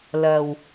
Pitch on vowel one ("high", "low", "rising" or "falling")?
low